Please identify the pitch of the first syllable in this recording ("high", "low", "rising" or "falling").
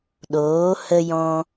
rising